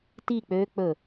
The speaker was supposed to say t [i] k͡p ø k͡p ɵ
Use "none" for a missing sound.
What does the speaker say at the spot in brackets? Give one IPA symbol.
i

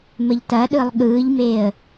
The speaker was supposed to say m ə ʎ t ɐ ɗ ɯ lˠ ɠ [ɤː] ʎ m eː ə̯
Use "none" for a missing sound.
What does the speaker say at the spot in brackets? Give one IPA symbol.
ɯː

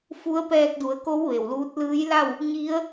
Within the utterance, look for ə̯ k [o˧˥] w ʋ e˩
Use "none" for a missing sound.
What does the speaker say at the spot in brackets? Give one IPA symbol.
o˧˥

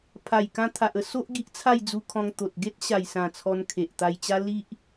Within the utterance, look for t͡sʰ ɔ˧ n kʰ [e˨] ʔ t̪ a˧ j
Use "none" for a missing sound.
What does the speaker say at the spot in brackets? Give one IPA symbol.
e˨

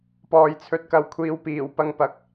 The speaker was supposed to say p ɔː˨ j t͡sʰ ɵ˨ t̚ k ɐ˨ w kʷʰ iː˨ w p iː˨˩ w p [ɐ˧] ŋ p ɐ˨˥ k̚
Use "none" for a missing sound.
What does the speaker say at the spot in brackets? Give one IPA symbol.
ɐ˧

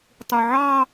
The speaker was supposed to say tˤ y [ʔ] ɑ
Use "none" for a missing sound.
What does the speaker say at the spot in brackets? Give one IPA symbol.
ʕ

